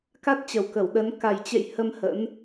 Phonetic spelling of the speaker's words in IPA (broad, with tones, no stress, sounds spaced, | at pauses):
k a˦˥ t̚ t͡ɕ ə˨˩ w k ə˧˩ w ɗ ə˨˦ n k a˨˩ j t͡ɕ ḛ˧˨ j h ə˧ m h ə̰˧˥ n